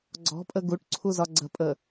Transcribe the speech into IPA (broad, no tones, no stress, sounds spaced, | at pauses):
ɡ͡ǀ ɔ̤ pʼ ə ɡ u ʈ ǀʰ u z ɒ ɡ͡ǀ ə̤ pʼ ə